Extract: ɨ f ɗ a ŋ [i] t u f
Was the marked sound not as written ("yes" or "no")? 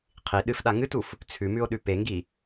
yes